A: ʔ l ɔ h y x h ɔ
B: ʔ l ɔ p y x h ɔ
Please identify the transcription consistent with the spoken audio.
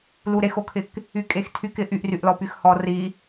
B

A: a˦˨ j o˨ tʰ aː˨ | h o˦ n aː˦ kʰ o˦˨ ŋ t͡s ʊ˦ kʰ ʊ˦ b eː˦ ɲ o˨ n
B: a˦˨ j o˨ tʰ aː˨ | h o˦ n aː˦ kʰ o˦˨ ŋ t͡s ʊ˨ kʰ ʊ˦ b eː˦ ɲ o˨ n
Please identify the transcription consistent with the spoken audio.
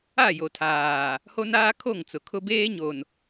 B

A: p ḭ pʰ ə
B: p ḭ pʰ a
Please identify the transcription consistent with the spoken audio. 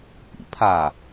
B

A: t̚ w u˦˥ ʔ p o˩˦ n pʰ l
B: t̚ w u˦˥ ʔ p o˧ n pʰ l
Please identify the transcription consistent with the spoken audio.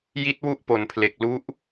A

